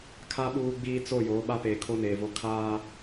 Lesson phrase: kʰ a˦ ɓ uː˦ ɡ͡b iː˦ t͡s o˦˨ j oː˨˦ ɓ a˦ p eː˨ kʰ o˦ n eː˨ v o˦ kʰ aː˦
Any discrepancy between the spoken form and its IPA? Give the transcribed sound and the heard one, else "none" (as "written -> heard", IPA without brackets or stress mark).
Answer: none